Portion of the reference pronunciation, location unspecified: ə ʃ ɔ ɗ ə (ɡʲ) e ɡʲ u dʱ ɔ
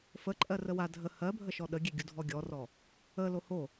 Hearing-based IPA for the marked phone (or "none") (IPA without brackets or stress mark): ɡʲ